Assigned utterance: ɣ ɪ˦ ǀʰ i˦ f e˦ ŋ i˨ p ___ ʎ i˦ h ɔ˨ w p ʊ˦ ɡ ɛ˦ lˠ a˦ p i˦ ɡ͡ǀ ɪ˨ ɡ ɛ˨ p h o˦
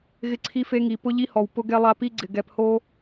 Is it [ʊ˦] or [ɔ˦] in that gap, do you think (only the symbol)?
ʊ˦